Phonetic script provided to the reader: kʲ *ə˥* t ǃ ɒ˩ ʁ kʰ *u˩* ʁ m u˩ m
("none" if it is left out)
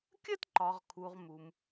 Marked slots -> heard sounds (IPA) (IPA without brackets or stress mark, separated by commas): ə˥, u˩